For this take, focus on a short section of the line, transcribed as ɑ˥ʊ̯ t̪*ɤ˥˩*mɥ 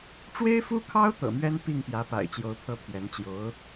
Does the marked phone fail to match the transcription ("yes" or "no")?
yes